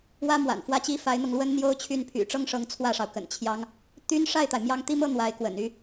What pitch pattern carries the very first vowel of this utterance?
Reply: high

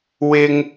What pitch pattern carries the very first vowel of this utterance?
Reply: high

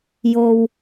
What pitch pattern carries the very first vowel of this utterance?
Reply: low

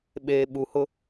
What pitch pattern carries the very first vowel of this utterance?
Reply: low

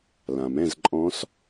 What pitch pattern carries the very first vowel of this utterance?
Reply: low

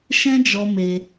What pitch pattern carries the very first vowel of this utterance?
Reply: high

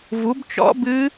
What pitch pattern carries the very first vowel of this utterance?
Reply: rising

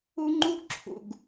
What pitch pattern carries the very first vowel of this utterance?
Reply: high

